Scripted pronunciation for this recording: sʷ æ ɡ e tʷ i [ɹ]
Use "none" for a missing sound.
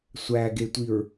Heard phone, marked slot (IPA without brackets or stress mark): ɹ